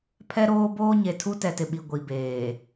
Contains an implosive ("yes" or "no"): yes